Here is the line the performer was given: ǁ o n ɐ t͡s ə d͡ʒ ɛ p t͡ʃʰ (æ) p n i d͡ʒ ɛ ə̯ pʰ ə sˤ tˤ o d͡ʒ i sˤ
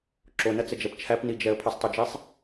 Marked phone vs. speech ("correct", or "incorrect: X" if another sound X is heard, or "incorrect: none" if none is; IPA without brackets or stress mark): correct